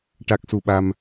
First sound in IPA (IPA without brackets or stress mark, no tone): ʈ